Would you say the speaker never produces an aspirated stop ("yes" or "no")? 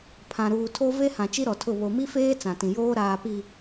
no